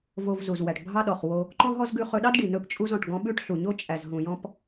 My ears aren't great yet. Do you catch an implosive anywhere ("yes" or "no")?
yes